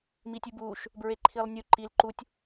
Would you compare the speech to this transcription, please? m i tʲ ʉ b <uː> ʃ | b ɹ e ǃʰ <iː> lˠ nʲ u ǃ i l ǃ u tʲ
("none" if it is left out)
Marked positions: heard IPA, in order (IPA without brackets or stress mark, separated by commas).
uː, i